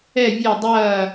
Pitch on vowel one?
falling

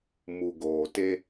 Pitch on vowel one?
low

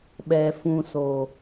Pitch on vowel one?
low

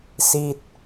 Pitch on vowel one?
falling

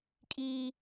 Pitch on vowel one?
high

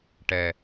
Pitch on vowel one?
low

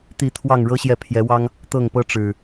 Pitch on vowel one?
falling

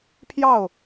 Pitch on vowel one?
falling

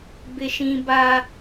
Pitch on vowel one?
high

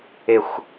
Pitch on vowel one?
falling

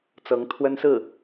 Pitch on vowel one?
rising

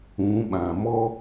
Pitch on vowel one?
rising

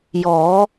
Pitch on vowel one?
rising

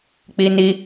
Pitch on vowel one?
high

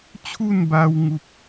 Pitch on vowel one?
falling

